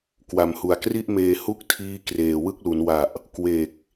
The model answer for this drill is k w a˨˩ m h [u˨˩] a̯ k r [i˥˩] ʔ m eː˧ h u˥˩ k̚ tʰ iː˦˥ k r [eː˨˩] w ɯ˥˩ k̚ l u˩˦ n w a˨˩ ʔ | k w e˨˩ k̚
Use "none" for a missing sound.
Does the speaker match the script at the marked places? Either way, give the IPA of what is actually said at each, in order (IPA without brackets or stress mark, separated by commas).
u˨˩, i˥˩, eː˨˩